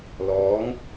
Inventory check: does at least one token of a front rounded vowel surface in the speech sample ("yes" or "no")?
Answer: no